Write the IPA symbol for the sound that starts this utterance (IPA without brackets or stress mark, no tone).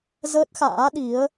z